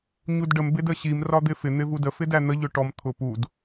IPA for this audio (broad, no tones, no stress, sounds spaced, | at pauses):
ɲ u d ɖ ə m b ɪ d ə ɕ i m r ɒ d̪ ɪ f ɪ n̪ ɪ v u d ə f ɪ d æ n̪ ə ʎ ʊ ʈ ɔ m t̪ʰ ʊ p u d